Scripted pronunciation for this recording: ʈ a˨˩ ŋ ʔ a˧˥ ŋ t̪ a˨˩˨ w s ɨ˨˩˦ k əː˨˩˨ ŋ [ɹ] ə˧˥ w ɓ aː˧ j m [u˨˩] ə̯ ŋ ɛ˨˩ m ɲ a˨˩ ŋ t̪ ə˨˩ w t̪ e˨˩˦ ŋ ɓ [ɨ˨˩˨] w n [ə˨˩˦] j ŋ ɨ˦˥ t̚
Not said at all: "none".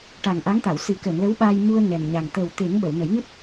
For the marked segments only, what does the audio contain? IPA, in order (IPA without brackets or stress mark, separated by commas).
l, u˧, ə˨˩˨, ə˨˩˦